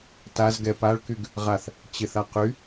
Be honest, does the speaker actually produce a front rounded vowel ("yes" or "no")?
yes